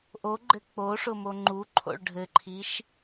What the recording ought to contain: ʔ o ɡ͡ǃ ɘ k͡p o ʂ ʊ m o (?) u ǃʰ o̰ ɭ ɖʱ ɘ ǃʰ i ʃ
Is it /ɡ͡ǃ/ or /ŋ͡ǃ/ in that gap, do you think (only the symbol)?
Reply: ŋ͡ǃ